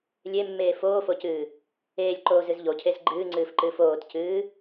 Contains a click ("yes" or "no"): yes